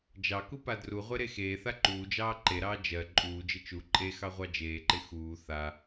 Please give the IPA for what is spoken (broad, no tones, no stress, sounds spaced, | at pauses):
d͡ʒ ɑ k u p a d r u ʁʷ e ɾ e x eː θ a ǃ uː d͡ʒ ɑː ǃ e ɾ ɑː d͡ʒ ɜ ǃʼ uː d͡ʒ ɪ t͡ʃ u ǃʼ e x ɑ ʁʷ ɑ d͡ʒ eː ǃ ɪ x uː θ a